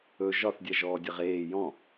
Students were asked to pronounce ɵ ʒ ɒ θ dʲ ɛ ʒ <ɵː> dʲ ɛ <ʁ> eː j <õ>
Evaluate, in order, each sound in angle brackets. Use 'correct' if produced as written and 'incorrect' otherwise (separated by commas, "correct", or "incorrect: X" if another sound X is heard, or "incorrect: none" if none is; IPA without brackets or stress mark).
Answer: incorrect: ɔː, correct, incorrect: ɔ̃